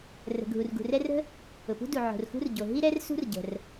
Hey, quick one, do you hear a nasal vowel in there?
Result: no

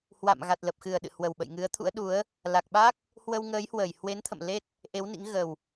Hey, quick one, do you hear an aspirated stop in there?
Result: yes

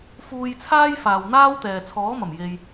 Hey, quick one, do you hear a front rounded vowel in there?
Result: no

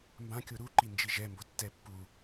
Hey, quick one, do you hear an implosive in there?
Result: no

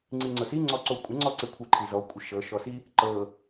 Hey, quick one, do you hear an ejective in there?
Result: yes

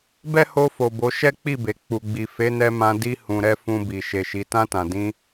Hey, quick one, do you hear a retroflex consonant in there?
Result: no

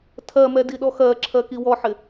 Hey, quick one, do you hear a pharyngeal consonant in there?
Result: yes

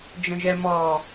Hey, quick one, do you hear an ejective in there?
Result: no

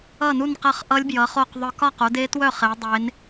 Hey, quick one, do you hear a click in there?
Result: no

